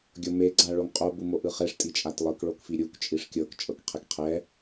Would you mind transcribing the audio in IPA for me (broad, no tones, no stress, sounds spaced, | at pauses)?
ɡʲ ɤ m e ɡ͡ǀ a ɭ o ŋ qʼ o b u m o ʔ ɯ χ e ʂ tʼ i t͡ʃʼ a t lˠ ɯ k ɭ o k f i ɾʲ u k t͡ʃʼ i ʂ kʲ ɤ k t͡ʃʼ ɤ k qʰ e k qʰ ɛ